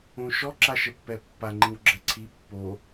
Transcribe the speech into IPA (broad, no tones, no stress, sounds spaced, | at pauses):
õ ʃ ɔ ǁ a ʃ ə pː ɛ pː a ŋ͡ǃ ĩ w ɡ͡ǁ ɛ ǀʰ i pː o